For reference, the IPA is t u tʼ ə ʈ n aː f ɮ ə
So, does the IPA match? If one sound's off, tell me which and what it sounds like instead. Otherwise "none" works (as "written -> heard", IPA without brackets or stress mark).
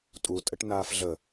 t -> tʼ